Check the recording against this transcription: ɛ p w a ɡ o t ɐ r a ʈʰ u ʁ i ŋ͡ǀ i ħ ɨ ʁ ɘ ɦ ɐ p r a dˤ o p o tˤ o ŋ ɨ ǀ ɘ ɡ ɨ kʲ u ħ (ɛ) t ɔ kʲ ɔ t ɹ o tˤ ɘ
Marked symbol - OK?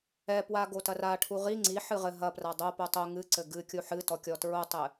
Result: no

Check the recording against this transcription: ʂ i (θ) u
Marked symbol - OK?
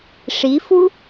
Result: no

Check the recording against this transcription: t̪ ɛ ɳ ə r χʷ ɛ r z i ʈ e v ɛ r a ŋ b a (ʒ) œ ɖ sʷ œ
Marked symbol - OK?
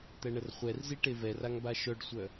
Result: no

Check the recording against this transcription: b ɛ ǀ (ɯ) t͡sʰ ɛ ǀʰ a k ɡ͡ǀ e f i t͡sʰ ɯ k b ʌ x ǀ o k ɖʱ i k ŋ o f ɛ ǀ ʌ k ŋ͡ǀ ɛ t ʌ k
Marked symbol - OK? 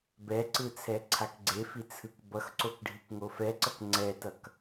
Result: yes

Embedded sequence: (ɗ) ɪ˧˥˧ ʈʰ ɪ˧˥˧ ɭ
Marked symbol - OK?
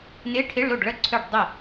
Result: no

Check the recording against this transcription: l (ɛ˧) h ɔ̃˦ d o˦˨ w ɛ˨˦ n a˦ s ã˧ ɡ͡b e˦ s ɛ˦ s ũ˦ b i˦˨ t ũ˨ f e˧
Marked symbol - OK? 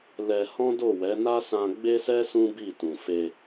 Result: yes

